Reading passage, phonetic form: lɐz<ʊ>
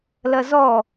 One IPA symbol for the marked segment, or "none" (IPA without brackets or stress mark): ɔ